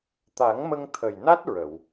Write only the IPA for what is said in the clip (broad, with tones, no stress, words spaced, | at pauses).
t̪a˨˩˦ŋmə˧ŋ t̪ʰə˨˩jna˦˥t̚ ɹə˨˩˨w